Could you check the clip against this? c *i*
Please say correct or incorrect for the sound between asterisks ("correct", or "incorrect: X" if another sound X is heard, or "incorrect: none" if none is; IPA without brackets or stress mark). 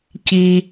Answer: correct